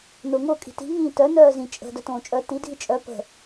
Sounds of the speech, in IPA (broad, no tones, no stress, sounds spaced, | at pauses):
n ʊː ŋ ʊː kʼ i̤ t i̤ ŋ ĩː t œ n œː z ĩ t͡ʃʼ ə̤ d œ t õː t͡ʃʼ œ t i dʱ i t͡ʃʼ œ p ə̤